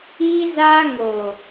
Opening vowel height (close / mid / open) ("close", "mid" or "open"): close